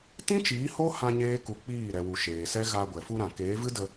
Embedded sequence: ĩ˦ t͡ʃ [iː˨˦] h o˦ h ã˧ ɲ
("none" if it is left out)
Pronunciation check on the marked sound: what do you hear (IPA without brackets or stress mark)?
iː˨˦